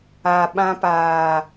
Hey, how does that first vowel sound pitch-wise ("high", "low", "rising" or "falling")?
low